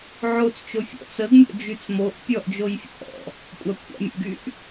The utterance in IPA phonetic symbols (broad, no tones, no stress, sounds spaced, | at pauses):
ʕ o t͡s t͡ʃ o fʲ ɔ̰ t͡s ə ɡ mʲ ɔ̰ d͡ʒ y t͡s m o ʔ pʲ ɔ ʔ d͡ʒ o j fʲ ə̰ ʔ ɔ̰ | kʷʼ a kʷʰ a̰ mʲ ə̰ ɡ y ʔ